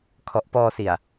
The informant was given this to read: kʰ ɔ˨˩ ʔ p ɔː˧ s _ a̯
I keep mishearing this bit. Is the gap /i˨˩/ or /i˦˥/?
i˨˩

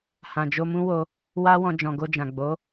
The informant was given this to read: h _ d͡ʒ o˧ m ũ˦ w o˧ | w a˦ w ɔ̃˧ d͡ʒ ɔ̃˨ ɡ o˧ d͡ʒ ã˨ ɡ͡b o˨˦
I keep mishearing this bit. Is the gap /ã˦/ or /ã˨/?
ã˨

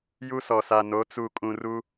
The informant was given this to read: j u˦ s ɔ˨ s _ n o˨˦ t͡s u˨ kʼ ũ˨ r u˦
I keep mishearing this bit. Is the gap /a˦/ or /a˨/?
a˨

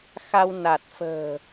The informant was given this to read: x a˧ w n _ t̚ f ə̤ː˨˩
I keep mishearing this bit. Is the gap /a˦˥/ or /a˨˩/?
a˨˩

